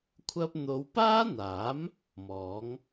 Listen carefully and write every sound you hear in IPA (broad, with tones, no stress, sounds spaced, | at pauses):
kʷʰ ɐ˧ p̚ n̪ o˨˧ w p aː˥ n̪ aː˨˥ m | m ɔː˨˥ ŋ